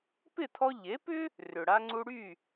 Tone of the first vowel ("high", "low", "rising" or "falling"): falling